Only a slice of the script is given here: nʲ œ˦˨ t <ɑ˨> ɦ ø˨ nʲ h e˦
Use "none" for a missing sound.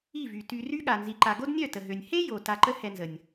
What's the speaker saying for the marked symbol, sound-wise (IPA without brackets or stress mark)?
ə˨